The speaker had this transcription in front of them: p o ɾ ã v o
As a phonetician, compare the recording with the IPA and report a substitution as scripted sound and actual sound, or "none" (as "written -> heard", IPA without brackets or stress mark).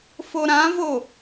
p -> f